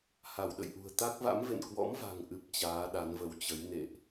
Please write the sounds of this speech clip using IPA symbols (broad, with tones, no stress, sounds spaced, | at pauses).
h a˧˩ w ɗ ə̰˧˨ j ʔ ṳ˨˩ ə̯ t̪ a˦˥ k̚ v a̰˧˥ m v ḛ˧˨ n k w ɔ̰˧˥ m v a̤˨˩ ŋ ʔ ɨ˨˩ p̚ t͡ɕ aː˨˦ ɗ a˨˦ n v ə˨˦ w t͡ɕ ə˨˦ j n ḛ˧˨ ʔ